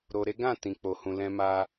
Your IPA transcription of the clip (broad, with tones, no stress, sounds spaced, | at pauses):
ɾ o˧ ɾ e˦ ɡ ã˦˨ t ĩ˨ k͡p o˨ h ũ˨ l ɛ̃˧ m a˧